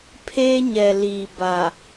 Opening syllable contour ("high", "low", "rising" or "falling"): high